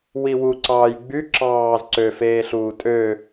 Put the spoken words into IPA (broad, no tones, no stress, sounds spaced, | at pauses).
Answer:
w i w u ǀ ɑː j ɡ͡b y ǁ ɑː z ǀ ø f eː ɬ uː tʼ ø